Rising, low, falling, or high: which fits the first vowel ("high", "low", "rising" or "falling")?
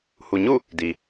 low